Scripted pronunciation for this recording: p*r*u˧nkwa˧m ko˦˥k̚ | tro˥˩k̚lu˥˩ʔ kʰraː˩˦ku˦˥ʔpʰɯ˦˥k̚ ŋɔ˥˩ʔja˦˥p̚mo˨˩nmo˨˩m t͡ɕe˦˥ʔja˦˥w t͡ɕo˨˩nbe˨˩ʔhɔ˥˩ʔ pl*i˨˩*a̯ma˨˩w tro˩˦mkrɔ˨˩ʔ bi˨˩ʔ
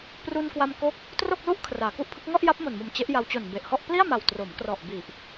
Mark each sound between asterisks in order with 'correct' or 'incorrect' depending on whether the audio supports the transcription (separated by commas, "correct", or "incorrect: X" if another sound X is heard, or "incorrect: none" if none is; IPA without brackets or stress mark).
correct, incorrect: i˥˩